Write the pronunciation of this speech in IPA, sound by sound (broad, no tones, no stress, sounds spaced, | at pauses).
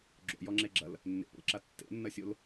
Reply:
ɡ͡ǁ o̰ j ɔ ŋ͡ǁ e ɡ͡ǁ ɐ l | nː ḛ p o̰ l ǁ a tː ḛ nː ɐ sʲ o l